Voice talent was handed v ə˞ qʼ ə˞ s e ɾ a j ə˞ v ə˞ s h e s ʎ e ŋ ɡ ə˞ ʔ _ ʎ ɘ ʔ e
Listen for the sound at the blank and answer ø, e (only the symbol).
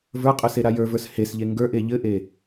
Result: e